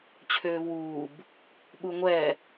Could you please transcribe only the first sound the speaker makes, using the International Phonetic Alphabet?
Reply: t͡ɕʰ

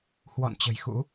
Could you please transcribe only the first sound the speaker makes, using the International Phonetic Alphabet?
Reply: h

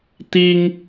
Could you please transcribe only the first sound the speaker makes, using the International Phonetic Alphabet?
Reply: t̪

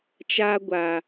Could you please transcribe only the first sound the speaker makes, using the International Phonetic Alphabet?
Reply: t͡ʃ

